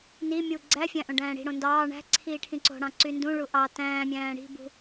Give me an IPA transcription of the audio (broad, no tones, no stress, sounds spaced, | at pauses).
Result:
n i mʲ u ɡ͡ǀ æ fʲ æ̃ ʔ õ ɖ æ̃ː ɽ i̤ ɽ õ n d ɑː ɳ æ̤ ǀʰ iː ʈʰ ĩ ǀ o̤ ɽ ɑ̃ ǀ y n d ũ ɭ u ʔ ɑ t æ̃ː mʲ æ̃ː ɽ i̤ b ṳ